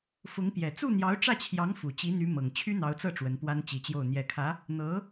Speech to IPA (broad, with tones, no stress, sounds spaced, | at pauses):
f ʊ˧˥ ŋ p j ɛ˨˩ t͡s u˥˩ n̪ j ɑ˧˥ ʊ̯ ʈ͡ʂ ä˥˩ t͡ɕʰ j ɑ˧˥ ŋ f u˨˩ t͡ɕ i˧˥ n̪ y˧˥ m ɤ˨˩ ŋ t͡ɕʰ y˥ n̪ ɑ˧˥ ʊ̯ t͡s ɤ˥˩ ʈ͡ʂ w ə˧˥ n p w a˥ n t͡ɕ i˧˥ t͡ɕ j o˥˩ ʊ̯ n̪ j ɛ˨˩ kʰ ä˧˥ | n̪ ɤ˧˥